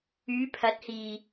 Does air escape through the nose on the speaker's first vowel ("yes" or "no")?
no